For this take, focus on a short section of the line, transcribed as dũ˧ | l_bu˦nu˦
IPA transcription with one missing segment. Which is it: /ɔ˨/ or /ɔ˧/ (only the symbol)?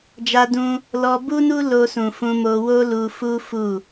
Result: ɔ˧